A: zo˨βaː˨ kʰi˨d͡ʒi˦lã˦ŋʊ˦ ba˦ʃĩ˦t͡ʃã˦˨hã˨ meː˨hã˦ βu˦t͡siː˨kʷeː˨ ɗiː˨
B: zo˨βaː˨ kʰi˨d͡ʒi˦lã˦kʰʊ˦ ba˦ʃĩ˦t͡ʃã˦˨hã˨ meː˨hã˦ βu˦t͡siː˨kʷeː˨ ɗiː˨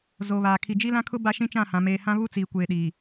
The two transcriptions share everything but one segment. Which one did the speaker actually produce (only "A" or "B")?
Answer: B